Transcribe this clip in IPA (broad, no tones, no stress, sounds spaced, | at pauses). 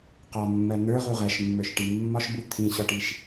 q ɒ mː ɜ n̪ ə˞ ʁ u ʁ ɜ ʃ mː ə˞ ʃ ʈ i mː ɒ ʃ b u t̪ʰ ĩ ɕ ɒ ʈ i ʃ